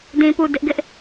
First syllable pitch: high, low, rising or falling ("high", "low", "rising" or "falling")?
low